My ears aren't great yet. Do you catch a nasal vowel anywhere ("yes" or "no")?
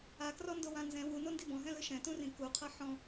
yes